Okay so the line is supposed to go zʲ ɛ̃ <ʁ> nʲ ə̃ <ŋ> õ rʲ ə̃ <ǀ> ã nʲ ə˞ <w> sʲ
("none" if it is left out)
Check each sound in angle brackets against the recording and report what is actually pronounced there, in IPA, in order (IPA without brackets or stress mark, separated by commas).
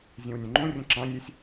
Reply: w, ŋ͡ǃ, ǁ, none